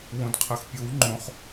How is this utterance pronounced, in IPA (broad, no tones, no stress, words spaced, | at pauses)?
wõdqʰɐxpʲow ŋ͡ǃõχ